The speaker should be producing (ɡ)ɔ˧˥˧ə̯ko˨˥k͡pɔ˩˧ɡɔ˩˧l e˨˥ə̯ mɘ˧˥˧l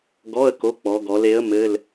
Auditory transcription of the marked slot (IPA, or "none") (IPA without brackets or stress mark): ɡ